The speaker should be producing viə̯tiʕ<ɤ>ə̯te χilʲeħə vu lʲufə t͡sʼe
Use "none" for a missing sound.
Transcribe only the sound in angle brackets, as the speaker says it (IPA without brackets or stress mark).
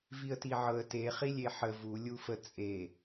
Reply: ɤ